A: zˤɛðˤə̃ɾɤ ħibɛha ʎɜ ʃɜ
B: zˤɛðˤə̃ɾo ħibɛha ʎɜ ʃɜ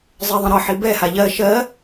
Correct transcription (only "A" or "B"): A